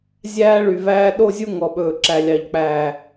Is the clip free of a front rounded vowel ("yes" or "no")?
no